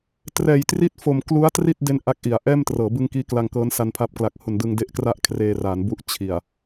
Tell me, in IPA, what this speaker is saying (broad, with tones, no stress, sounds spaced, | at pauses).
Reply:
t r ɛː˨˩ j t r i˥˩ t̚ f o˨˩ m k l u˦˥ a̯ t r i˥˩ t̚ d e˦˥ n ʔ a˦˥ k̚ ʔ i˩˦ a̯ ʔ ɛː˥˩ m t r ɤː˩˦ b ɯ˧ ŋ k iː˦˥ k l a˧ ŋ k ɤː˦˥ n s a˧ n pʰ a˦˥ p̚ k l a˨˩ k̚ h u˨˩ n d ɯ˧ ŋ d e˦˥ ʔ k r a˥˩ ʔ kʰ r eː˧ r a˩˦ n b u˦˥ ʔ t͡ɕʰ i˨˩ a̯